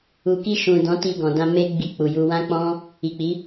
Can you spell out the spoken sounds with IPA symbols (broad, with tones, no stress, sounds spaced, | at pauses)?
u˨ k i˧ ʃ ũ˨ d ɔ̃˨˦ t i˧ ɡ ɔ̃˨ d ã˧ m e˦ ɡ͡b i˦˨ k͡p u˨ j u˧ w ã˦ k͡p ɔ̃˦ | i˨ k͡p i˨˦